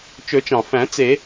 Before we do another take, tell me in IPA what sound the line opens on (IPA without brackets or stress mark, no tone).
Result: t͡ʃ